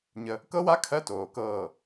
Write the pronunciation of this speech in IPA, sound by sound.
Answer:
ɲ ə˦ | k ɤ˦ w a˦ kʰ ɜ˦ t oː˨ k ɤː˦˨

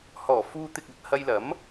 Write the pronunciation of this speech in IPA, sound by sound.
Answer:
h ɔː˨˩ f uː˧ t̪ ɪ˨ k̚ ɐ˨ t̚ h ɐ˧ j l ɐ˨˥ m

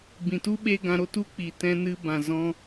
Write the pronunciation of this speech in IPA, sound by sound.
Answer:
b ĩ˨ t u˦ ɓ e˦ ɡ ã˧ ɾ o˦ t u˦ k͡p iː˨ t ɛ̃˧ n ɨ˧ b ã˨ z ɔ̃˧

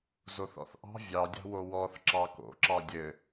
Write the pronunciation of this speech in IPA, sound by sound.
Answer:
z o θ ɔ̰ θ ʔ ɑ̤ vʲ ɑ dʲ ɑ̤ w o w ɔ θ ǁ ɑ k o̰ ǁ ɑ dʲ ɘ

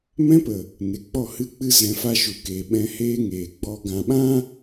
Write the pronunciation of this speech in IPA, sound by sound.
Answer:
m ɛ̃˦ p ə˨ | n e˨ k͡p ɔ˦˨ h ɨ˦˨ k͡p ɨ˦ z ɛ̃˧ f a˦ ʃ u˨ k eː˨ ɓ ɛ̃˧ h eː˦ ŋ eː˨ ɡ͡b ɔ˧ ɡ ã˨ ɓ ã˦

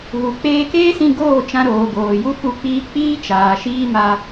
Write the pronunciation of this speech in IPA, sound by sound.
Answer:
ɣ u˨ k͡p eː˧ k eː˦ s ĩ˧ ɡ oː˦˨ t͡ʃ ã˧ ɾ oː˨ ɡ oː˨ j u˦ f u˦˨ k͡p iː˦ k͡p iː˦ t͡ʃ aː˨ ʃ iː˦ m a˧

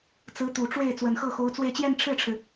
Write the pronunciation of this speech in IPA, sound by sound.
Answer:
t͡s ɹ̩˧˥ t̪ u˨˩ ʈ͡ʂ w e˥˩ ɪ̯ t͡s w ə˨˩ n x ɤ˥˩ x o˧˥ ʊ̯ t͡s w e˥˧ ɪ̯ t͡ɕ j ɛ˥˧ n ʈ͡ʂʰ ɻ̩˥˩ ʈ͡ʂʰ ɻ̩˩

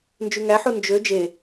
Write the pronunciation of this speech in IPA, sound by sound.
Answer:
n d͡ʒ y ŋ æ ħ u n d͡ʒ ø d͡ʒ e

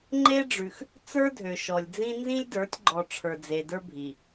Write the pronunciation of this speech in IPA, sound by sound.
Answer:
ŋ͡ǃ e˦ ɖ͡ʐ ʉ˨ x | t͡s ə˞˦ dʱ ø˨ ʃ ɔ˨ lʲ d͡z ĩ˦ n z ĩ˦ lʲ d ə˞˨˦ tʲ ɡ͡ǃ ɔ˨ ʈ͡ʂʰ ə˞˨ d͡z e˨ d ə˞˦ bʱ i˨

